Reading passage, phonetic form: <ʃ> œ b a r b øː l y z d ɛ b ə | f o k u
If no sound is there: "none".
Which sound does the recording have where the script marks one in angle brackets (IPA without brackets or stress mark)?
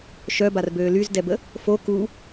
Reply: ʃ